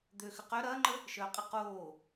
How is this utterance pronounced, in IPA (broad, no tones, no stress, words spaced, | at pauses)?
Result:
d̪øxʏ qœ ɾɐːŋ͡ǃə | ʃœːqʼə qoː